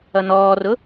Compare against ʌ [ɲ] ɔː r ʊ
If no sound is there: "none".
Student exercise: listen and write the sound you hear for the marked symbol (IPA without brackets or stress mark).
n